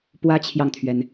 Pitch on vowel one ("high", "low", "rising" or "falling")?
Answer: high